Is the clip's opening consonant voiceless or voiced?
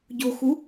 voiced